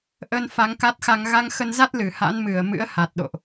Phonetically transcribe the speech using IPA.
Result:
ʔ ə˧ n f a˨˦ ŋ k a˦˥ t̚ x a˧ ŋ ɣ a˧ ŋ x ə˧ n z a˦˥ t̚ l ɨ˧˩ h a̰˧˥ n m ɨ˧˩ ə̯ m ɨ̰˧˥ ə̯ h a˨˩ t̚ ɗ o̰˧˨ ʔ

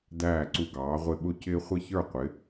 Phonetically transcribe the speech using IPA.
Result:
d æː˥˨ ǀ u˦ ɡ ɑː˨˥ ʁʷ ɪ˥˨ ɓ ʊ˥˨ c ɪː˦ χʷ ɪ˥˨ ç ə˞˥˨ qʷ ɪ˨˥

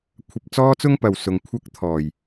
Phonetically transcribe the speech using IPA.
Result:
kʷʰ ɐ˧ p̚ t͡s ɔː˥ t͡s ʊ˥ ŋ p ɐ˨ w s ʊ˨ ŋ kʷʰ ɐ˥ k̚ t̪ʰ ɔː˨˩ j

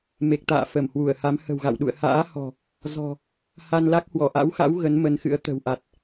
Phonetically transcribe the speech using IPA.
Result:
m e˨˩ k̚ t̪ a̰ː˧˨ f ə˧˩ m h w u˧˩ ə̯ h a˨˦ m h ə̤˨˩ w ɣ a̰˧˨ w ɗ ṵ˧˨ ə̯ h a̰ː˧˥ h ɔ̤˨˩ | z ɔ̤˨˩ | h a˧ n l a˦˥ k̚ h w ɔ˧˩ ʔ a̰˧˥ w x a̰˧˥ w ɣ ə˨˦ n m ə˨˦ n x ɨ̰˧˥ ə̯ t̪ ə̤˨˩ w ʔ a˨˩ t̚

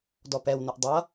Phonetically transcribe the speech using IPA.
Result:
d ɔ p ɛ w n ʊ ʔ dˤ ʌ

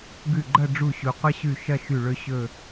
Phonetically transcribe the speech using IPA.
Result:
ɡ ʉ˧˩ ɡ͡ǃ ɐ˥˧ ɖ͡ʐ u˧˩ ɕ u˩ qʷ ɐ˥ ɕ ʉ˧˩ ʃ ɐ˥˧ ʃ ʉ˧˩ ɭ ɵ˥˧ ɕ ɵ˥˧

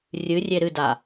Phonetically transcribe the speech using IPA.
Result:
rʲ ɨ rʲ e ɾ ɨ d a

